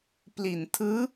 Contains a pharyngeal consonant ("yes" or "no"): no